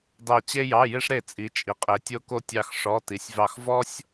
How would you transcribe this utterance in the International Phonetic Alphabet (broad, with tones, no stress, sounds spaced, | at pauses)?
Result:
d ɑ˥˧ t͡ɕ e˥ j ɑ˧˥˧ j e˥ ʂ ɾ e˥˩ t͡sʼ i˨˦ t͡ʃʼ i˨ qʼ e˨˦ tʲ o˥ k o˥ tʲ ɑ˥˧ x ʂ ɔ˧˥˧ t i˨˦ sʲ v ɑ˥˩ x v ɔ˥ sʲ